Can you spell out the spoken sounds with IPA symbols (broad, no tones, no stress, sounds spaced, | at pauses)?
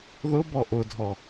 ð ʊ b ɔ ʔ ʊ dʱ ɔ